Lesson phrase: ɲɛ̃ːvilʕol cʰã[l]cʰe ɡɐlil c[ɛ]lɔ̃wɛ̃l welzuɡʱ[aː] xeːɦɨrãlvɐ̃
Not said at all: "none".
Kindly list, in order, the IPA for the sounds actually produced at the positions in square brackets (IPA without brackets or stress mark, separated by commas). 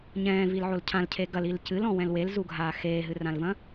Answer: l, ɨ, aː